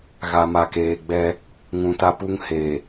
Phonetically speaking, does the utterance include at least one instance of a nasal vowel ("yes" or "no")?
yes